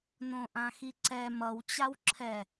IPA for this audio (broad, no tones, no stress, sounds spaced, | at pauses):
n õ ʔ ã x i ǀ ɛ m ʌ w t͡ɕ a w ǁʰ ɛ